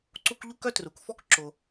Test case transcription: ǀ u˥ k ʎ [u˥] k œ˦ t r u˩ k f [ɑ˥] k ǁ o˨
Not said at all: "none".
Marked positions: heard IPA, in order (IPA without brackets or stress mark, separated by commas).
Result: u˦, ɔ˥